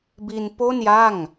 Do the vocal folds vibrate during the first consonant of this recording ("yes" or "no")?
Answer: yes